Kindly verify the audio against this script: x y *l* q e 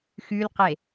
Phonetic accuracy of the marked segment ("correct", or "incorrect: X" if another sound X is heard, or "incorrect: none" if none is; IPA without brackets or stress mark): correct